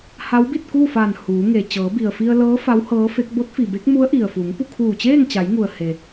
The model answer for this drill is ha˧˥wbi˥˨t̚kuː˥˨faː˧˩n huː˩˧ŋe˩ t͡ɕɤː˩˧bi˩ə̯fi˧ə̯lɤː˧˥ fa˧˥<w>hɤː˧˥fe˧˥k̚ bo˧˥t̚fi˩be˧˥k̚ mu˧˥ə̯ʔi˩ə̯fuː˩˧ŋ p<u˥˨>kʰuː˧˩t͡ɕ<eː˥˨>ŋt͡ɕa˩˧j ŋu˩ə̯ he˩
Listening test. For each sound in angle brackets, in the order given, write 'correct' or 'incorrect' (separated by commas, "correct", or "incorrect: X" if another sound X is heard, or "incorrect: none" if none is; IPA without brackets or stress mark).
correct, correct, correct